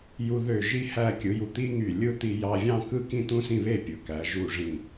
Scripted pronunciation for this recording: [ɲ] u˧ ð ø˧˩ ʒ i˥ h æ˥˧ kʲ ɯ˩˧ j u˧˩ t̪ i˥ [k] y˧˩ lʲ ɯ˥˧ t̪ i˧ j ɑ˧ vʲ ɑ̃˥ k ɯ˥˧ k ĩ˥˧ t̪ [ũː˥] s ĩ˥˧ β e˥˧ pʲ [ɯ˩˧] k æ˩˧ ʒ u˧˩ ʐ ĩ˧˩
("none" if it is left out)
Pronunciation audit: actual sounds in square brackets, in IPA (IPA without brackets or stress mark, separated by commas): j, ŋ, ũ˥, ɯ˩˧